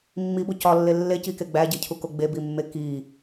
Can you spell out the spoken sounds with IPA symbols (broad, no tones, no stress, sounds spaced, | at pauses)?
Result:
mː i b o c ɒ lː e lː e c i k e ɡ͡b æ ɟ e cʰ u k o ɡ͡b e b i mː e k i